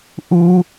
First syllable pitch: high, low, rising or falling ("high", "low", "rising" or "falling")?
high